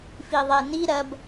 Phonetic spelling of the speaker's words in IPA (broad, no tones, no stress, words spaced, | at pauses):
fiðˤeni ɾɐb